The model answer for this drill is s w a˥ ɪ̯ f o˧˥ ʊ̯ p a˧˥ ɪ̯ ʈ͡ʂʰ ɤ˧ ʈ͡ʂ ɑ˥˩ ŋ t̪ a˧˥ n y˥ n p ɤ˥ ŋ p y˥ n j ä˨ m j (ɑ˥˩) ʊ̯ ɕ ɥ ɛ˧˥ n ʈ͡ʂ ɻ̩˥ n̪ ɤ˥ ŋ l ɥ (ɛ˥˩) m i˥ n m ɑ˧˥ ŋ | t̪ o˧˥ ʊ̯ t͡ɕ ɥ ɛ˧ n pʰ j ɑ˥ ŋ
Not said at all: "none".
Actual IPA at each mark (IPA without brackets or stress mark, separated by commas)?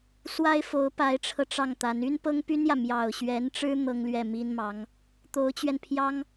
ɑ˨˩, ɛ˥˩